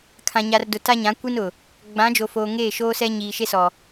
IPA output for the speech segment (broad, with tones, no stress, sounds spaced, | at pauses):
kʰ ã˨ ɲ a˨ r d ʊ˨ t a˦ ɲ ã˨˦ kʷ i˦ n ʊ˨ | ɡ͡b ã˨˦ d͡ʒ o˨ f oː˨ ŋ eː˦˨ ʃ oː˦ s ɛ˦ ɲ iː˨ ʃ e˦ s ɔ˨